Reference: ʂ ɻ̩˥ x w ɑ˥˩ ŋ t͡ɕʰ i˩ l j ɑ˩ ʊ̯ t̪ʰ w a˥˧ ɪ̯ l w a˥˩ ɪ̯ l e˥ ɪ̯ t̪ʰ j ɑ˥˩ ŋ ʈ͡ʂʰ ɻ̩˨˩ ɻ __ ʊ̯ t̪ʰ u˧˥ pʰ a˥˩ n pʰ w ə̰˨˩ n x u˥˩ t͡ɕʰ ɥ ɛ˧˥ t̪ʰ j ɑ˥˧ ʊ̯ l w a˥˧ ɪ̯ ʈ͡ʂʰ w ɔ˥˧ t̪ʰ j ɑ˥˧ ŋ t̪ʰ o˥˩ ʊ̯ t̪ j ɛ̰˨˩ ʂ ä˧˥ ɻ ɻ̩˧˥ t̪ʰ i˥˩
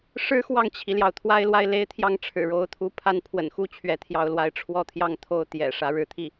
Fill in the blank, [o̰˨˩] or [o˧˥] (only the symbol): o˧˥